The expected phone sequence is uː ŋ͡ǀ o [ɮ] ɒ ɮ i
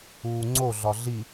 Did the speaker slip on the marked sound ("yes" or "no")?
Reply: no